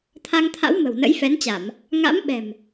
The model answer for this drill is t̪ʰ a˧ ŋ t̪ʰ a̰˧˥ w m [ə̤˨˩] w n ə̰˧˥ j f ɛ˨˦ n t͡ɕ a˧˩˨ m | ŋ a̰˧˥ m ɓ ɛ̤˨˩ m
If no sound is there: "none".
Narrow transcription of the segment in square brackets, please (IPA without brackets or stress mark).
ə̤˨˩